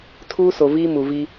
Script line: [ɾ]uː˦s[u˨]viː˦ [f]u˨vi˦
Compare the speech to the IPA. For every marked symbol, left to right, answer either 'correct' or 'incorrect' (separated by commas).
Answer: incorrect, incorrect, incorrect